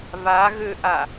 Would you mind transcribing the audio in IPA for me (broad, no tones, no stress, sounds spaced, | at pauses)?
β a ɣ ø ʔ a